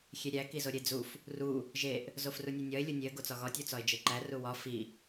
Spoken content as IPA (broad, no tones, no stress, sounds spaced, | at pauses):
xʲ e ɾʲ æ k i z o ɾʲ e d͡z u f | r u | ʒ e ʔ | z o f r u nʲ u nʲ ɒ ɪ̯ lʲ u nʲ e ə̯ ɡ o t͡s ɒ ɣ ɒ tʲ u t͡s ɒ ɪ̯ d͡ʒ e ǃ æ r u w ɒ f i